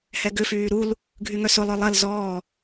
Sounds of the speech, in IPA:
h ɛ ɡ ʏ f yː ɾ u l | ɡʱ y ŋ œ s ʊ lˠ œ lˠ ɐ l z ɔː

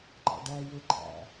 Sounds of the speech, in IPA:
ŋ͡ǃ ɑ̰ ɖ æ j e ɡ͡ǃ æ̰

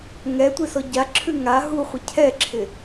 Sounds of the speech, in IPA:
ŋ ɛ tʷ ɪ s ɔ ɟ a ǁʰ ʉ ŋ a ɦ u χʷ ɪ cʰ ɛ ǁʰ ɪ

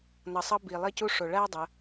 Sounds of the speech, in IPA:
n ʌ˨ sˤ ʌ˧ b i˨ lˠ i˧ c u˧ ʂ o˨ ɭ æ˦ dˤ ə˧

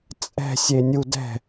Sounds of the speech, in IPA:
t͡sʼ ɛ̤ sʲ e nʲ u d ɛ̤

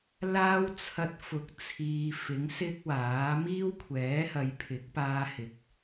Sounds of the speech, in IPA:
l aː˥ w t͡sʰ ɐ˧ t̚ f ʊ˨ k̚ t͡sʰ iː˨ f ɪ˨˥ ŋ s ɪ˥ k̚ w aː˨˥ m iː˥ w kʷʰ ɛː˨˥ h ɐ˨˧ j pʰ ɪ˨˥ k̚ p aː˥ h ɪ˨ k̚

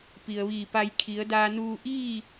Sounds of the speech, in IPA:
p i˩ ə̯ ʋ iː˧˩ p a˧ j kʰ i˩˧ ə̯ d aː˧ n uː˧ ʔ iː˥˨

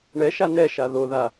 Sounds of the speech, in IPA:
ɳ ɛ ʃ a n ɛ ʃ a ð o ð a

